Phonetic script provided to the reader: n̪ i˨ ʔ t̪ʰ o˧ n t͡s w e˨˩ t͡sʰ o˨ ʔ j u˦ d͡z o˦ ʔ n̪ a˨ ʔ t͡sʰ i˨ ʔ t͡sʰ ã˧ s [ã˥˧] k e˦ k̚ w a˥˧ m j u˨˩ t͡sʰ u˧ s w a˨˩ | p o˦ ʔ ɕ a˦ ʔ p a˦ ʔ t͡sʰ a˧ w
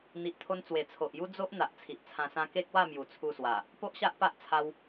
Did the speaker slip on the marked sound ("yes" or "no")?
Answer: yes